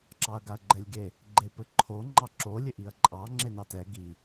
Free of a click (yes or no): no